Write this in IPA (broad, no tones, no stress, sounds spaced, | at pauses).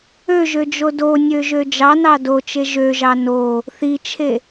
ø ʒ ø d͡ʒ o d o nʲ ø ʒ ø d͡ʒ ɑ n ɑ d o t͡ʃ e ʒ ø ʒ ɑ n o | θ i t͡ʃʰ e